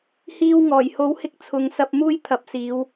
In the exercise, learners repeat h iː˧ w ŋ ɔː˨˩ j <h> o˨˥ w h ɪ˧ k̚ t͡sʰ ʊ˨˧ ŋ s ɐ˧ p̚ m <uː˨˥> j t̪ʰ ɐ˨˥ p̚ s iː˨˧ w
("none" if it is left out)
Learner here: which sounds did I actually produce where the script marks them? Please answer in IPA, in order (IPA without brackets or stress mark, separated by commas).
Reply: h, uː˥